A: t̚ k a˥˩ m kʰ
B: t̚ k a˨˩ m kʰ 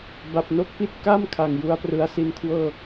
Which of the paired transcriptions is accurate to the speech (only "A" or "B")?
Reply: A